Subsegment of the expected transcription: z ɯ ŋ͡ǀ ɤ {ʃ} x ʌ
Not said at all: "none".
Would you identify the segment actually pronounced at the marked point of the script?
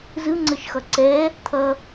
ʃ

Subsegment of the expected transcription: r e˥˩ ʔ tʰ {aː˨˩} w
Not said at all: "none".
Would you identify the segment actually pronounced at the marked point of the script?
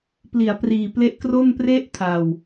a˨˩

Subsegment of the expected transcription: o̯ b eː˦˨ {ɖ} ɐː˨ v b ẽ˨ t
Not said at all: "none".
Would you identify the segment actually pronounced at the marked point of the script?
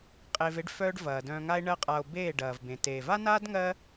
ɖ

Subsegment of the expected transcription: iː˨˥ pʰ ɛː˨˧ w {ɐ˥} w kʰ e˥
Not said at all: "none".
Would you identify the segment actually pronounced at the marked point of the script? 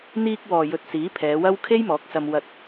ɐ˥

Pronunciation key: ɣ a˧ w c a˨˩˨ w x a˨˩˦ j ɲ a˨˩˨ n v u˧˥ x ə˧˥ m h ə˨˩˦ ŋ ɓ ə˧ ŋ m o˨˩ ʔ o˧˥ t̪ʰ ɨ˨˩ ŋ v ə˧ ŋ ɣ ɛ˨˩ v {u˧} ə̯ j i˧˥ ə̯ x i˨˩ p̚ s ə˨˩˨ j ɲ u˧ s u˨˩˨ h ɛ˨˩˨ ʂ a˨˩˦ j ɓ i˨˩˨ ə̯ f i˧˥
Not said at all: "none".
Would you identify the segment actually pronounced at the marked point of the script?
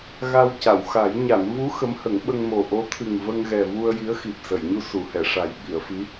u˧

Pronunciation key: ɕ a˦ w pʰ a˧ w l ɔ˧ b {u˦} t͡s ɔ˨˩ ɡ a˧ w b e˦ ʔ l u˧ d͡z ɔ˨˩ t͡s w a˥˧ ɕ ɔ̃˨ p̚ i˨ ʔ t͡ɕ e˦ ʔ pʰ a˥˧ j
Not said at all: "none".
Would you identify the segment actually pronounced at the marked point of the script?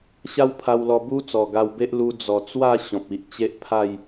u˦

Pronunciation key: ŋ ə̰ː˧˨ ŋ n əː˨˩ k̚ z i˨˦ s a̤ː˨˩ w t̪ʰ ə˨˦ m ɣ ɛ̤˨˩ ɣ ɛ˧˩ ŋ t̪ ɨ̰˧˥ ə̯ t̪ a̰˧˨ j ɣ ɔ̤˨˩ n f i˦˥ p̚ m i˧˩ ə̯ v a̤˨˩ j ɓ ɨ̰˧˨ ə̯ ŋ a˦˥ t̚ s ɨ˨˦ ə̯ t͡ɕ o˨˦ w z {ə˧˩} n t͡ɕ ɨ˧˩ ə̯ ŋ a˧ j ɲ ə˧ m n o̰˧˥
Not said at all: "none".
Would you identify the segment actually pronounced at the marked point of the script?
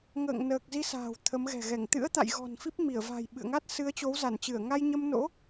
a˧˩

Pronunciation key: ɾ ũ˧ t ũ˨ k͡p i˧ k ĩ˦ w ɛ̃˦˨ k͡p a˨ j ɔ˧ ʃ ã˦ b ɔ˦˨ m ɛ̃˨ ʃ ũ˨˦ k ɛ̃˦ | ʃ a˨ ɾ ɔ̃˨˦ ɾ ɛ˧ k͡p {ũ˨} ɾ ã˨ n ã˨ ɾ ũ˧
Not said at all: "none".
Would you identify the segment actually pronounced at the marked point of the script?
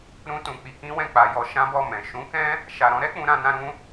ũ˨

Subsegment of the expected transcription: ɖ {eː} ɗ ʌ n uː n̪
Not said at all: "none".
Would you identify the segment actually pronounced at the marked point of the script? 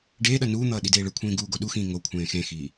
eː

